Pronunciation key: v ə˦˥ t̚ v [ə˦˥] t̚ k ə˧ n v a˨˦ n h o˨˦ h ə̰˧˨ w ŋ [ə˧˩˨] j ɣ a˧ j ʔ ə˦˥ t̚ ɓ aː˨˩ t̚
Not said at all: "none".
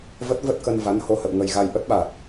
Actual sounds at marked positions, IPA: ə˦˥, ə˧

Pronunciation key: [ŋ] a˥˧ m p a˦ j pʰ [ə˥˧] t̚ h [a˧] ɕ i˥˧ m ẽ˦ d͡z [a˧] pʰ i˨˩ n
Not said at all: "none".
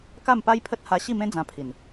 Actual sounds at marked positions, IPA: k, ə˦, a˧, ã˧

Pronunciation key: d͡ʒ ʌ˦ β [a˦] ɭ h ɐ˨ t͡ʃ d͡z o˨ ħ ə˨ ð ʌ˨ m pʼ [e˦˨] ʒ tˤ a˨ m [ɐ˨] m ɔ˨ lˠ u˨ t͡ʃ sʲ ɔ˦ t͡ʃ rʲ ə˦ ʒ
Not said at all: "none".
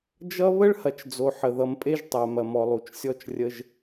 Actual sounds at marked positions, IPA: ə˦, e˦, ɐ˨

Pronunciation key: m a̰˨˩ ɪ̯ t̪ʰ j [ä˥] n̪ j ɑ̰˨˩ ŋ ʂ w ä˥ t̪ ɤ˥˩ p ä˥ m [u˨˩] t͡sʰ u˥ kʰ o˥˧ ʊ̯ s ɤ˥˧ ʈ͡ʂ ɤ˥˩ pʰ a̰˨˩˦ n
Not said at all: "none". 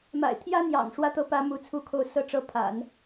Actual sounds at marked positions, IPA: ä˥, u˥˩

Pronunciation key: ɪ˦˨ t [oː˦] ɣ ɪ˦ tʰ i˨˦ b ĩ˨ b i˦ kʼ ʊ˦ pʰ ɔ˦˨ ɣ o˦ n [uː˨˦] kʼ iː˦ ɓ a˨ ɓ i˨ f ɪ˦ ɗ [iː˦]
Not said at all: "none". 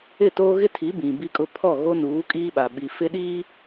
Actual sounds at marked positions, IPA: oː˦, uː˨˦, iː˦

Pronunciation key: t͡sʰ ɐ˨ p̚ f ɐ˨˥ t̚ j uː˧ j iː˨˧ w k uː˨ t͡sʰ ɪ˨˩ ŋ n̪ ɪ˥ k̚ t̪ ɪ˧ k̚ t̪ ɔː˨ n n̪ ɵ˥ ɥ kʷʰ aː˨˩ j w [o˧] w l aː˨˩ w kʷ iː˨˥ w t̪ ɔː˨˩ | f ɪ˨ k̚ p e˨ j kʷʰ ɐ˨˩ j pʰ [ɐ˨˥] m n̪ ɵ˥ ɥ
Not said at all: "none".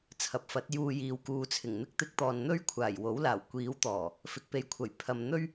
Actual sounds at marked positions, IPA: o˨˥, ɐ˨

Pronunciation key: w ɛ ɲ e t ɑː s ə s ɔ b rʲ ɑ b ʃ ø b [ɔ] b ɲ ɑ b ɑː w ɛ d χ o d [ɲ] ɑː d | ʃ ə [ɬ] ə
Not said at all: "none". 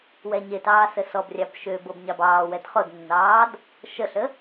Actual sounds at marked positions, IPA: ɤ, nː, ɬ

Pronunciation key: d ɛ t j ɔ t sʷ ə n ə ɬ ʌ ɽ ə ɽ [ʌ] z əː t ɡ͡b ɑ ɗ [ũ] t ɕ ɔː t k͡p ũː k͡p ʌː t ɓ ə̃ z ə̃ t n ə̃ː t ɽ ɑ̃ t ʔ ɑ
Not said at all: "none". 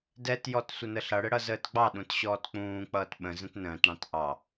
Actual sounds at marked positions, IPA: ʌ, ũ

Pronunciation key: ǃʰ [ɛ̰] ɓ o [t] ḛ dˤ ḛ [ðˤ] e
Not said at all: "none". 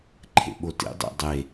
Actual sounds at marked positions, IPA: ḛ, t, dˤ

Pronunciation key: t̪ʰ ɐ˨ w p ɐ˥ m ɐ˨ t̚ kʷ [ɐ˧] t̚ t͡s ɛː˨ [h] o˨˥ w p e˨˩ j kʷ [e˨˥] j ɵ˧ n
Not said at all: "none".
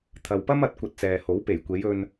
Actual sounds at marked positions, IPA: ɐ˧, h, e˨˧

